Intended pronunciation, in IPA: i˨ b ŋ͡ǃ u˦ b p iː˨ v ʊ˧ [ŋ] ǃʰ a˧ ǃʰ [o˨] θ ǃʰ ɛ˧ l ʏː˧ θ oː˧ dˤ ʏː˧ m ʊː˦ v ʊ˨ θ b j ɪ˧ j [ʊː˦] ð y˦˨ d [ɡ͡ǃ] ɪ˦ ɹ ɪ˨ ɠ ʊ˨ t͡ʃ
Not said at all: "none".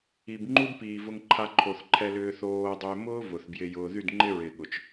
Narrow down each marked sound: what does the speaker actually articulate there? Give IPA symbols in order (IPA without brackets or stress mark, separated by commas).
ŋ, o˨, ʊː˧, ŋ͡ǃ